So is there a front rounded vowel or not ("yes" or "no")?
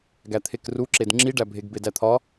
no